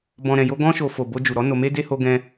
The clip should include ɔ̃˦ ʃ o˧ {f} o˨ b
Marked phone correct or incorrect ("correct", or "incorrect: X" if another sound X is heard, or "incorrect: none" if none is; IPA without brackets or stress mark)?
correct